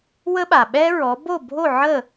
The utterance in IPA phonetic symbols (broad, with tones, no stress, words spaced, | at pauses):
wə˥ɓa˩ ɓɛ˥ɹɔ˩˥ bo˥˩bʱo˥˩ ʕə˥˩